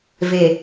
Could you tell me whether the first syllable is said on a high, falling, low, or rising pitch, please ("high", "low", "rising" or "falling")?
low